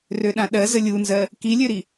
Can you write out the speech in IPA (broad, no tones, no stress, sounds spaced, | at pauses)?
r ø ɗ ã ɗ ɜ z ə lʲ u n z ɜ | k i lʲ ø ɾ i